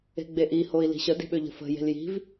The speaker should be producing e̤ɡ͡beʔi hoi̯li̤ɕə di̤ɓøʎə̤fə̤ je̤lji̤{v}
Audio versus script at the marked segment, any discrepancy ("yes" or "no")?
no